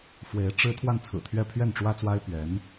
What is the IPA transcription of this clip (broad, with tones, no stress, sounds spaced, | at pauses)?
f w e˧˥ ɪ̯ ʈ͡ʂ ɻ̩˥ t̪ʰ w a˥˩ n t͡sʰ ɹ̩˨˩ t̪ʰ ɥ ɛ˥˧ pʰ ɥ ɛ˥˩ n ʈ͡ʂ w ä˥ t͡s w a˥ ɪ̯ p ɥ ɛ˧˥ n